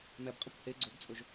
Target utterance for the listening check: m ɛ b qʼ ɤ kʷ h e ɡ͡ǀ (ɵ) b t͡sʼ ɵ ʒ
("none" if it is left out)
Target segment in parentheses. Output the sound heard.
o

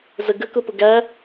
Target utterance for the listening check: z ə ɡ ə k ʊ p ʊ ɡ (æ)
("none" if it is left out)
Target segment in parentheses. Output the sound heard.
æ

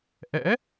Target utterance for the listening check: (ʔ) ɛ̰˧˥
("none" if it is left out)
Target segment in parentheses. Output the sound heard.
ʔ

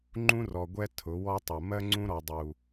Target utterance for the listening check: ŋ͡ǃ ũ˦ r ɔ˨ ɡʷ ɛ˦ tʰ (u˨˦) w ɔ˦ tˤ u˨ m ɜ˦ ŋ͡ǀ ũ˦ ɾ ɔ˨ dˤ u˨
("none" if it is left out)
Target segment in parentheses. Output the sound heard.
ʊ˨˦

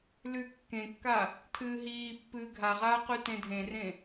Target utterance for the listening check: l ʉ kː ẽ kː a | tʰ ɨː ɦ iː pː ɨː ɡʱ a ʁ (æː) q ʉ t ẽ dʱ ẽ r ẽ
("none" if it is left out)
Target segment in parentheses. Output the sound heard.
aː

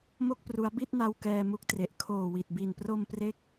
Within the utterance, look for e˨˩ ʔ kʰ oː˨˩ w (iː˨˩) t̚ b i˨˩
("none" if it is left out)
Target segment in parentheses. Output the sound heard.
i˨˩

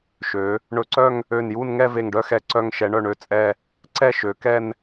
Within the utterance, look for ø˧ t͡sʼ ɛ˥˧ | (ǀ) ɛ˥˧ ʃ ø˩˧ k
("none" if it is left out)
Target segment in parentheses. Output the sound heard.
ǀ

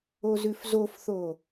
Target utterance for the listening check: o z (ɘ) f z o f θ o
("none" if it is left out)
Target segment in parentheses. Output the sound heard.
ʉ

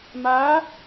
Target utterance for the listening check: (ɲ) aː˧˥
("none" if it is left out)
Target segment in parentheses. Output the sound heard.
m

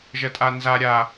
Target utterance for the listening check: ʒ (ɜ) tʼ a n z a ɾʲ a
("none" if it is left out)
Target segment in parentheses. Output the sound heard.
ɜ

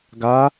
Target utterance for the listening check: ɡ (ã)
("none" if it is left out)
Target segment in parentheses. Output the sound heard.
a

